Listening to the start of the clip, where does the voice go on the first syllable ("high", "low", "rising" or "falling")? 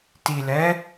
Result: low